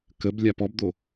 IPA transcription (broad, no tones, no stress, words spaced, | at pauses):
kəb lʲapɔbd̪o